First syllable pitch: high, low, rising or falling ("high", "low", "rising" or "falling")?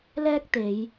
high